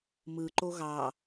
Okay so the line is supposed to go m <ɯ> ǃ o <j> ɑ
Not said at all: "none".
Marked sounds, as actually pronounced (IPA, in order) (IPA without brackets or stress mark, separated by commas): ɯ, ɣ